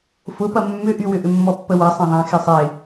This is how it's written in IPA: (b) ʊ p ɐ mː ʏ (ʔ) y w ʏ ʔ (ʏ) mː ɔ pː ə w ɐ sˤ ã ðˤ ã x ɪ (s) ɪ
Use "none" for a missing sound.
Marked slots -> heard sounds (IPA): f, ʔ, ʏ, sˤ

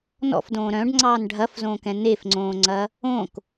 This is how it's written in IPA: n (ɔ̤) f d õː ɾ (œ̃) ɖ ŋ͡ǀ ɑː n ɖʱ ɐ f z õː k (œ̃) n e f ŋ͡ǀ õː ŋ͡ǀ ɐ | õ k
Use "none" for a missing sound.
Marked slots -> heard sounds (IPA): ɔ̰, œ̃, ɛ̃

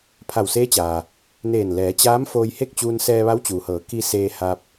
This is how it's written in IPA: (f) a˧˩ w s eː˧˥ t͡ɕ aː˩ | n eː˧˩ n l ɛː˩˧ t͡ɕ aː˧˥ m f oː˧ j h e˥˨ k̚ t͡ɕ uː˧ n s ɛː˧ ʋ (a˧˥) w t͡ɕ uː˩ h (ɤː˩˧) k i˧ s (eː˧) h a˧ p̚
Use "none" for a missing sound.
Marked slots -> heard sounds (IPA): pʰ, a˧˥, ɤː˩˧, eː˧

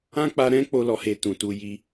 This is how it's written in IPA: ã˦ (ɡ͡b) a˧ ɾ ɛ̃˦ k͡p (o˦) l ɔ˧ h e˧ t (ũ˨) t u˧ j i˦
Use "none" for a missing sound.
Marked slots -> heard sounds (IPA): k͡p, o˦, ũ˨

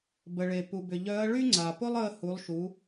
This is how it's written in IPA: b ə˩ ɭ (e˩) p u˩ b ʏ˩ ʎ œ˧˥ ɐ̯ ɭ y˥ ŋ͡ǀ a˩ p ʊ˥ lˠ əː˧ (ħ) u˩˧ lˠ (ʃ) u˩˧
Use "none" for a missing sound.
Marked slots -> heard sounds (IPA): e˩, h, ʃ

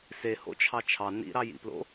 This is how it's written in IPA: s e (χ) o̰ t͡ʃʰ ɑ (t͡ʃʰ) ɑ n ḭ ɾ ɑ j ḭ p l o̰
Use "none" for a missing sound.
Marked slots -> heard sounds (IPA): h, t͡ʃʰ

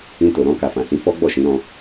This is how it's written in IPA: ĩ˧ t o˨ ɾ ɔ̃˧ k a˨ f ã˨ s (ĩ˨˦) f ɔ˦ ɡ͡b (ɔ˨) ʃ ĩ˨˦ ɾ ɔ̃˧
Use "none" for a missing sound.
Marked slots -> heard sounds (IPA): ĩ˨˦, ɔ˦˨

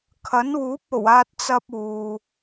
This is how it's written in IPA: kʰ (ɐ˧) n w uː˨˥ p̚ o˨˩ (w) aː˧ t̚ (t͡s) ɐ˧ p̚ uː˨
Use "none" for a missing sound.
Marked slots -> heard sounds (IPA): ɐ˨˥, w, t͡s

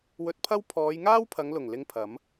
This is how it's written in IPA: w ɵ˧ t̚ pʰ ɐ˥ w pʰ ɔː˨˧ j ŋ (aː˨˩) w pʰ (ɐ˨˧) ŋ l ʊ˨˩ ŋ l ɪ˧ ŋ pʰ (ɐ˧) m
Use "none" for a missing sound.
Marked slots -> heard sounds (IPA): aː˥, ɐ˨˧, ɐ˨˥

